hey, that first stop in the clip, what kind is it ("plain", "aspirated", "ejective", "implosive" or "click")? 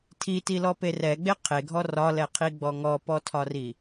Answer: aspirated